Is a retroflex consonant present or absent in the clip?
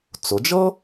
absent